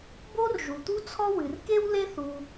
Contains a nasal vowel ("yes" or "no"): no